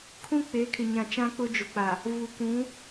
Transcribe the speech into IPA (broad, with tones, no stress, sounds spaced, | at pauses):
kʰ ũ˦ k͡p eː˨˦ kʰ ɪ˨ ɲ ã˨ t͡ʃ ã˦ k͡p ʊ˦ d͡ʒ ʊ˨ k͡p a˨ | v u˨ k ũ˨˦